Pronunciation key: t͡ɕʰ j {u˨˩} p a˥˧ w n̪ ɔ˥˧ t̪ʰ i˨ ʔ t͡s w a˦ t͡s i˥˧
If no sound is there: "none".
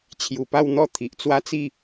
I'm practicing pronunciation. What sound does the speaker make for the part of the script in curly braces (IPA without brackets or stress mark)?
u˨˩